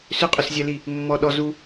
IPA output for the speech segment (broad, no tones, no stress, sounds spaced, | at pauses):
s ʏ qʼ ʏ s zʲ æ l i | mː ɔ ɗ ɔ z u